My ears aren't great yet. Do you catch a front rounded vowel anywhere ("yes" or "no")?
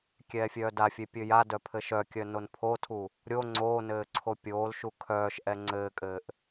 yes